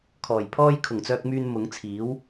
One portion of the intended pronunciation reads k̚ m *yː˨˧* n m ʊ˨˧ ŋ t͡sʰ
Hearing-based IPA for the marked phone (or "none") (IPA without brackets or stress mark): yː˧